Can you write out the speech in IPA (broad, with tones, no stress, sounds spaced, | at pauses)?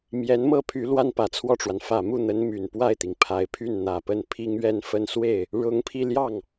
m j ɛ˧˥ n m ɤ˥˩ pʰ y˧˥ l w a˥ n p ä˨˩ t͡sʰ w ɔ˥˩ ʈ͡ʂ w a˩ n f ä˨˩ m u˥˩ n̪ ə˧˥ n m y˨˩ n p w a˥˩ ɪ̯ t̪ i˩ ŋ pʰ a˧˥ ɪ̯ pʰ y˥˩ n n̪ ä˨˩ p ə˥˩ n pʰ i˥ ŋ ɥ ɛ˥˧ n f ə˥˧ n s w e˥˩ ɪ̯ | ɻ ʊ˧˥ ŋ pʰ i˧ l j ɑ˥˩ ŋ